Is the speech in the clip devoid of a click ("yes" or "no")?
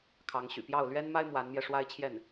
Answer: yes